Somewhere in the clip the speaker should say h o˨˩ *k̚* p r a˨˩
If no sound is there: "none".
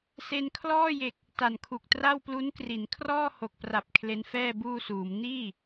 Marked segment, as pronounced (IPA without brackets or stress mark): k̚